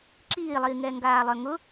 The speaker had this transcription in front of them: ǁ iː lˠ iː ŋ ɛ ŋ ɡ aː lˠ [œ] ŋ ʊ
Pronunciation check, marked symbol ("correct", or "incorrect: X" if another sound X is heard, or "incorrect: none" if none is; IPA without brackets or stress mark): correct